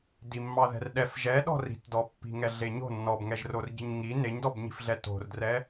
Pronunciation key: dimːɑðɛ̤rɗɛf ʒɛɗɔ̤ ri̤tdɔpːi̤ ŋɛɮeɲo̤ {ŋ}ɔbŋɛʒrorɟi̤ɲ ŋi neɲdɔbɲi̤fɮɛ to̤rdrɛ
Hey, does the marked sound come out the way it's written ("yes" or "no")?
no